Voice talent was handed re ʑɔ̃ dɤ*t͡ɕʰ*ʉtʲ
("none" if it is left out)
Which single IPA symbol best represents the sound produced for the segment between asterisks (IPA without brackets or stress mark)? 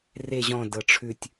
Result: ʈ͡ʂʰ